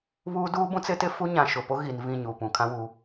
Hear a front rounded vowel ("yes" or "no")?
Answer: no